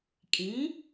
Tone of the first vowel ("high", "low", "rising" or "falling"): rising